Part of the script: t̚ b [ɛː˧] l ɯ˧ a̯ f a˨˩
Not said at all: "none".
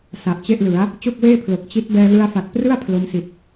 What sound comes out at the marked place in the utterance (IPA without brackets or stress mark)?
ɛː˧